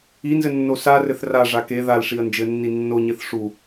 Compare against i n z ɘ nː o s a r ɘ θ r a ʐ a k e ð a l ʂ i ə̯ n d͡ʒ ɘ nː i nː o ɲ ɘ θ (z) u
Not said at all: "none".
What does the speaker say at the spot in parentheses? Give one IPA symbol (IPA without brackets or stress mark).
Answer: ʂ